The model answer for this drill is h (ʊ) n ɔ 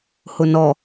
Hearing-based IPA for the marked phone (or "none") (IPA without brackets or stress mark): ʊ